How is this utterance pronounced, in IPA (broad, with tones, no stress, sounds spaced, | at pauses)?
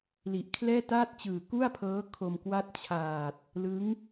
l i˨˩ ʔ kʰ l ɛː˥˩ t aː˥˩ t̚ t͡ɕ ɯː˨˩ k u˥˩ a̯ pʰ ɤː˦˥ kʰ o˧ m k w a˥˩ t̚ t͡ɕʰ aː˨˩ t̚ | l ɯ˦˥ ŋ